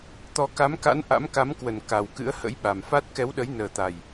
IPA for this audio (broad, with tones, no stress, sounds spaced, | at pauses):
t̪ ɔ˨˦ k a˨˦ m k a̰˧˥ n ʔ a̰˧˥ m k a˨˦ m k w ə˨˩ n k a˨˩ w k ɨ̰˧˥ ə̯ h ə̰˧˥ j ɓ a˨˩ m f a˦˥ t̚ k ɛ˨˦ w ɗ ə˨˦ j n əː˨˩ t̪ a˨˩ j